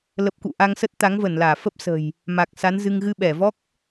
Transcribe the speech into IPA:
l ə˨˩ p̚ k ṵ˧˨ ʔ a˧ ŋ s ə˦˥ t̚ t̪ a˨˦ ŋ v ə˧˩ n l aː˧˩ f ə˦˥ p̚ s ə̤˨˩ j | m a˨˩ k̚ s a˨˦ n z ɨ˧ ŋ ɣ ɨ˧ ɓ ɛ˧˩ v ɔ˦˥ k̚

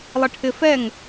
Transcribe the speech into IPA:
lˠ ɪ ʈʰ ɪ f ɛ ŋ

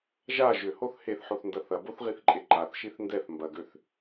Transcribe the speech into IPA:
ʒ a ʒ ʏ h o θ h e θ ħ o θ n d ɐ θ ɐ b o θ ʁ i θ ǃʼ e ǃ a θ ʃ i θ n d ɛ θ m b ɐ ɡ ø θ

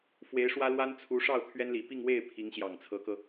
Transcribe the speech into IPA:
f w e˧˥ ɪ̯ ʂ w ä˥ l w a˥ n t͡sʰ u˧˥ ʂ ɑ˥˩ ʊ̯ t̪ʰ ɥ ɛ˥ n l i˨˩ p i˥˧ ŋ w e˥˩ ɪ̯ pʰ i˧˥ ŋ ɕ j ɑ˨˩ ŋ t͡sʰ ɤ˧˥ k ɤ˧

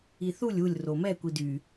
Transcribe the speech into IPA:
i θ u lʲ u lʲ r o m ɛ kʷ i d y

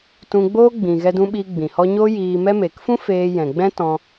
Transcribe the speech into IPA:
t ũ˧ ɡ͡b oː˦ ɡ͡b ĩ˨ ɣ ɛ˧ d ũ˧ ɓ iː˧ ɡ͡b ĩ˨ h ɔ˧ ɲ oː˦ j iː˧ m ɛ˧ m eː˨ k f ũ˦ f eː˧ j ɛ̃˨ ɡ͡b ɛ̃˦ t ɔ̃˧

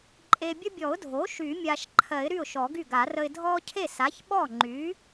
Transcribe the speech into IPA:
ǃʼ e˨ bʲ ə˦ bʲ ɔ˨˩˦ ʊ̯ dʱ o˩˥ ʃ y˨˩˦ mʲ a˨ ʃ ǃʰ ɜ˨˩˦ ɪ̯ ɾ y˥˩ ʊ̯ ʃ ɔ˨˩˦ ɡ y˥˩ ɡ a˨˩˦ r ə˨ ɪ̯ dʱ ɔ˦ cʰ e˥˩ s a˩˥ ç ɓ ɔ˥˩ ŋ͡ǃ y˩˥

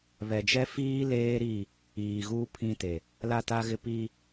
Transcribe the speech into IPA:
β ɛ˨ d͡ʒ ɛ˦ f iː˦ l eː˦ ɾ i˦˨ | iː˨ ɣ uː˦ pʰ ĩ˦ t e˨ | l a˦˨ t a˦ ɣ ɪ˦ p i˦

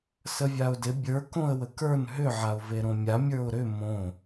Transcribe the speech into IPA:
s ə vʲ a ʊ̯ d ɪ bʲ ə˞ k õ ə̯ w ə k ə˞ n ɦ ʏ ʕ a ʊ̯ v e ɾ õ mʲ a mʲ ə˞ ʊ̯ ɾ ʏ m õ

